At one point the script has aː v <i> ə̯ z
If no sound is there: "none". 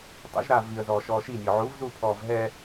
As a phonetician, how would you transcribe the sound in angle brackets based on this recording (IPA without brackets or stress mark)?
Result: i